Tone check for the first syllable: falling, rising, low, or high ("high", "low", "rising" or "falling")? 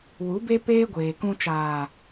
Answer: rising